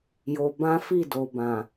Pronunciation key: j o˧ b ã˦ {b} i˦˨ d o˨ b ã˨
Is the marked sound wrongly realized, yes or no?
yes